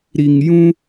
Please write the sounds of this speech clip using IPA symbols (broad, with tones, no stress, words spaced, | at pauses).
ɾi˧ŋjũ˦